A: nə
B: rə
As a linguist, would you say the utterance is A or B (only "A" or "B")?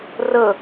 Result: B